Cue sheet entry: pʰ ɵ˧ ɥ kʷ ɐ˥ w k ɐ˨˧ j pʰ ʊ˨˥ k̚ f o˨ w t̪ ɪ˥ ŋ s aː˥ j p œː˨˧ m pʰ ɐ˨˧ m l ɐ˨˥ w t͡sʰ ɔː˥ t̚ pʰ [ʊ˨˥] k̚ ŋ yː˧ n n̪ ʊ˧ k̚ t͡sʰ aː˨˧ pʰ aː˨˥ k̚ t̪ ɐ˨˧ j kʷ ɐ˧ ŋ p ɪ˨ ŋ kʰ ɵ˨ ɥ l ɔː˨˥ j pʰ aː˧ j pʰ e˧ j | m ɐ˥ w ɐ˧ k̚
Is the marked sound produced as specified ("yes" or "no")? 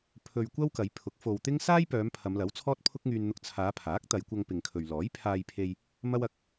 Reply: no